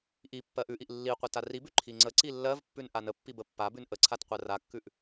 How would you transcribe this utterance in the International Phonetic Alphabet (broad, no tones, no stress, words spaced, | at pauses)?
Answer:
ʔi pːɜʔʉʔiʔ lːiqʷɜt aribʉ ǃʰiŋ͡ǀəǀi lːɜvpːʉn ʔanəpːib əpːabʉn ʔəǀʰat qʷɜrakːʉʔ